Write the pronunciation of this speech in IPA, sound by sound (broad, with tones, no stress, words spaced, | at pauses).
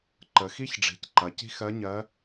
ǃə˩˧xi˥çɖ͡ʐi̤˩˧cǃɐ˩˧ ci̤˥xɜ˧˥ɲɜ˧˥